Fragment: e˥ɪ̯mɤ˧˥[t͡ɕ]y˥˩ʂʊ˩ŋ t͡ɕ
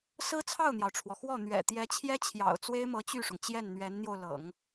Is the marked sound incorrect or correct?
correct